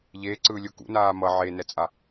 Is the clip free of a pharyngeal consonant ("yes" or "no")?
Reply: no